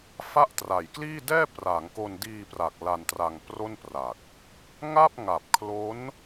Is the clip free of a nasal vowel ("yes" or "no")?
yes